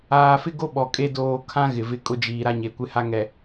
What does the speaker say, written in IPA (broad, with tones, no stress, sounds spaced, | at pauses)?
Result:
aː˨ f ɪ˦ ɡ o˦ ɓ ɔ˨ kʼ e˦ d oː˨ kʰ ã˦ ɣ ɪ˨ v ɪ˦ kʼ ʊ˦ d͡ʒ iː˨ ɾ a˦ ɲ e˨ kʷ ɪ˦ h a˦ ŋ ɛ˨